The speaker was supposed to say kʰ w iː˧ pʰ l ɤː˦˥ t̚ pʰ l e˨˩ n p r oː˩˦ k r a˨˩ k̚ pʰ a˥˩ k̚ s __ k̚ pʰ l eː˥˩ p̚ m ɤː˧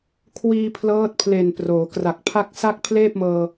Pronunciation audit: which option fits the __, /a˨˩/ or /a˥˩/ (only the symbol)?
a˥˩